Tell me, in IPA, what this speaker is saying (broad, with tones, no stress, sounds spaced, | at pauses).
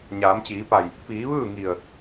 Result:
ɲ aː˩˧ m t͡ɕ iː˩˧ p a˧˩ j | p iː˩˧ ʋ ɯː˥˨ ŋ i˧˩ ə̯